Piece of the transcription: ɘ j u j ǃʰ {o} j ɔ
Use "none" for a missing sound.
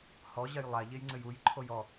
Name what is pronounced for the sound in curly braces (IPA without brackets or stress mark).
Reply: o